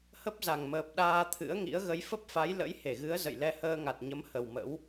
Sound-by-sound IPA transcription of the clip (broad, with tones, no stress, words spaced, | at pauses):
hə˦˥p̚za˨˩ŋməː˨˩p̚ ɗaː˧t̪ʰɨ̰˧˥ə̯ŋḭ˧˥ə̯ ɣə˨˦jfə˦˥p̚fa˨˦j lə̰˧˥jhe˧˩ɣɨ˨˦ə̯ zə̰˧˨j lɛ˧həː˧ŋa˨˩t̚ɲə˨˦m hə˨˩wmə̰˧˥w